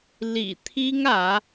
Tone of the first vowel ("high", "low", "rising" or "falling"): low